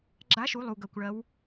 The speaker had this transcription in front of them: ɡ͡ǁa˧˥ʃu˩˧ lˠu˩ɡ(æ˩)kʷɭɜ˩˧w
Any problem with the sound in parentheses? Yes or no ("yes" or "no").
yes